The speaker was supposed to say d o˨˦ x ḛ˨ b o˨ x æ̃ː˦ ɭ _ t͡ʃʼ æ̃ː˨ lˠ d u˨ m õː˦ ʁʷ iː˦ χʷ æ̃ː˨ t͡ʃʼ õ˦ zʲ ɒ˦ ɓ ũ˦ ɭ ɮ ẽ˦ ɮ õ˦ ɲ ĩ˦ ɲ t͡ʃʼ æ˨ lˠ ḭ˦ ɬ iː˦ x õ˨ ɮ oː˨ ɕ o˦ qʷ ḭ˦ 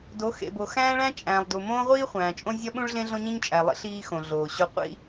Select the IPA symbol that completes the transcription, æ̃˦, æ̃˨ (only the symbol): æ̃˦